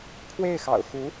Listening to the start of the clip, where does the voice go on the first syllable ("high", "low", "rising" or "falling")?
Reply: falling